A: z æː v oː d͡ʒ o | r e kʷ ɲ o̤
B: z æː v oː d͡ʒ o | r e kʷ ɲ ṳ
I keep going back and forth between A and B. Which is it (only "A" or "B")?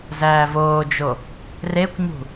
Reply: B